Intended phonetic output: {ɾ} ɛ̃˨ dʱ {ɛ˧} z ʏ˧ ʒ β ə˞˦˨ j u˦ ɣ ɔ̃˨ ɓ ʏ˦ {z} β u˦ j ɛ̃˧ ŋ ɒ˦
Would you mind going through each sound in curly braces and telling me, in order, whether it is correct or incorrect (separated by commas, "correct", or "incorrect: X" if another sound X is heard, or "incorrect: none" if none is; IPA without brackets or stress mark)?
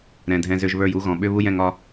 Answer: correct, incorrect: ɛ̃˧, incorrect: none